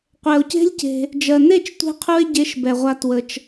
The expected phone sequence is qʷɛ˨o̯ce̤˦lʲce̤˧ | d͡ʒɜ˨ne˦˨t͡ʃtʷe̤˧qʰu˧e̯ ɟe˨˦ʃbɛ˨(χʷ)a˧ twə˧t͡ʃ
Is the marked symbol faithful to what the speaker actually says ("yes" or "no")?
no